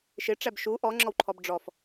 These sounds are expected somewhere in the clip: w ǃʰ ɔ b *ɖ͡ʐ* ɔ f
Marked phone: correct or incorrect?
correct